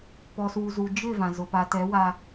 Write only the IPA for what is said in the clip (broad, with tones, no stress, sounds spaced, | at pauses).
p ɔ˨ s uː˨ z u˨ d͡ʒ ɪ˦˨ v ã˨ z ʊ˨ p a˨ t ɛ˨˦ w a˦